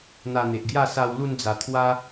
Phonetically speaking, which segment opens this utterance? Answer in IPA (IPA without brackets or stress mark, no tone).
n̪